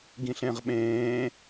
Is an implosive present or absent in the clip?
present